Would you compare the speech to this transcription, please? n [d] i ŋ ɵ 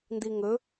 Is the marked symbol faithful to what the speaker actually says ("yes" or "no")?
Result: yes